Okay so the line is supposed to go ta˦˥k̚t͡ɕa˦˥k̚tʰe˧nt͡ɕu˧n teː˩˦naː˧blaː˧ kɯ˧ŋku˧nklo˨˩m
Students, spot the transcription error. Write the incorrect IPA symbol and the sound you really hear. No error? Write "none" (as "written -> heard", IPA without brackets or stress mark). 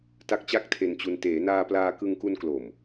b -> p